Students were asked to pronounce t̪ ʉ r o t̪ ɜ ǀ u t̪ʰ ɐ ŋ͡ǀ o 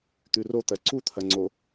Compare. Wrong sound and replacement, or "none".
none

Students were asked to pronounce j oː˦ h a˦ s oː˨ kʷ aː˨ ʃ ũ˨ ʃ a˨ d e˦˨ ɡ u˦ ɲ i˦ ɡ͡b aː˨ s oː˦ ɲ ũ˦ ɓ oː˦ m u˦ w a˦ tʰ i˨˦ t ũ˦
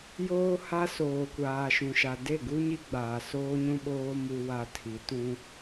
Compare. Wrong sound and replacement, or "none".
none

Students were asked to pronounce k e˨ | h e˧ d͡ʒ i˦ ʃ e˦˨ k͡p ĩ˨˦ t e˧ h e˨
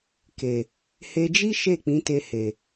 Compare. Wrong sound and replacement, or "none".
none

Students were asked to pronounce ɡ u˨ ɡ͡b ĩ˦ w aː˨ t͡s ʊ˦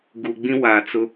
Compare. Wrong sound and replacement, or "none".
none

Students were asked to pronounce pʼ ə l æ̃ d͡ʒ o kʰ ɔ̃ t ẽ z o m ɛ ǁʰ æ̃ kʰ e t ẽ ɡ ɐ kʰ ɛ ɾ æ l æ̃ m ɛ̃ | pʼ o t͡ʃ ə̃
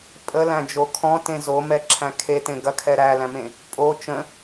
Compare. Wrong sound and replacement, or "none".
ɛ̃ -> ẽ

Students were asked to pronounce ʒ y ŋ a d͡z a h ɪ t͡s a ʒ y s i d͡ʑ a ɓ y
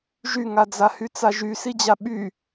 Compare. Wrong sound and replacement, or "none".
ɪ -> y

